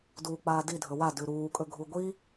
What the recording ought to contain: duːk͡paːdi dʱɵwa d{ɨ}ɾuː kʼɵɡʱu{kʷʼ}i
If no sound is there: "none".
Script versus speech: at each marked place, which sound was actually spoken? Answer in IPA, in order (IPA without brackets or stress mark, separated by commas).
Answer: ʉ, ɡʷ